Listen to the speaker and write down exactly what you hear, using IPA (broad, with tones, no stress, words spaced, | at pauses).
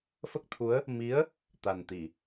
fə˦˥k̚t̪ʰu˧˥ə̯ | mi˧˥ə̯ | t̪a˨˩n t̪i˨˩˨